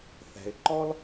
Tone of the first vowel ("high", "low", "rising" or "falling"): low